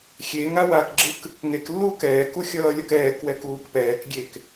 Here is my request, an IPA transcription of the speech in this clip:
xʲ e ŋ a w a k ɡ͡ǁ ɯ k | ŋ e k lː uː k ɛː k u xʲ ʌː lʲ ʌ k ɛː k w ɛ k uː k p ɛː k ɡʲ e k

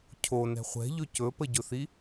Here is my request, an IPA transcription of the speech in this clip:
cʰ o n ɛ̤ χʷ ɛ̤ ʎ ɵ c ɵ p ə ɟ ɵ θ i

